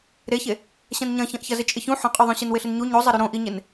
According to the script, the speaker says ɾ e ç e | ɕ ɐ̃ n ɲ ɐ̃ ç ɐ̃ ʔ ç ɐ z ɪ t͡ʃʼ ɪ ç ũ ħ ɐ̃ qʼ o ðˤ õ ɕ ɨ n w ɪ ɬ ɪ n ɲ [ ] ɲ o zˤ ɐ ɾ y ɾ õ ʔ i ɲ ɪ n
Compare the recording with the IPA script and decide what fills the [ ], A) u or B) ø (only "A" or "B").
A